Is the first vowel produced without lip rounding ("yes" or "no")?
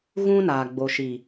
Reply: no